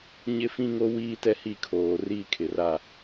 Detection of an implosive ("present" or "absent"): absent